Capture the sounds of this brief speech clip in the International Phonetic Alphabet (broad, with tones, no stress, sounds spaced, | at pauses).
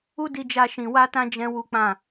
u˦ d i˧ d͡ʒ a˧ ʃ ĩ˨ w a˧ t ã˧ d͡ʒ ɛ̃˦ w u˦ k͡p ã˦˨